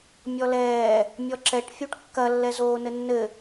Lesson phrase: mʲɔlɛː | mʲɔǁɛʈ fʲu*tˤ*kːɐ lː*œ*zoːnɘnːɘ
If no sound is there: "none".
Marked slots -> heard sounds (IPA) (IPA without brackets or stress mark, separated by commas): ʈ, ɛ